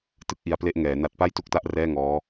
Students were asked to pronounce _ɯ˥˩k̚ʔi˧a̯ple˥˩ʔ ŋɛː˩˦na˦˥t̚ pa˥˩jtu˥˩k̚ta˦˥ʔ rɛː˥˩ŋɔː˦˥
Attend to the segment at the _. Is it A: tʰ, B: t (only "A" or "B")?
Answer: B